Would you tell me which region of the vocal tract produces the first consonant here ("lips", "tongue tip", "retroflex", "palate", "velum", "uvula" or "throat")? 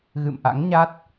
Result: velum